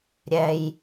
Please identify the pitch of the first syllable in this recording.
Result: high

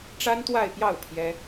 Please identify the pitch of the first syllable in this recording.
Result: high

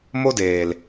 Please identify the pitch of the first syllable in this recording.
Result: high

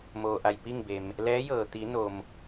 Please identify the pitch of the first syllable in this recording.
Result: low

